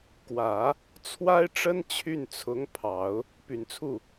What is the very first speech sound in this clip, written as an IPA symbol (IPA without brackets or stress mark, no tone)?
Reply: k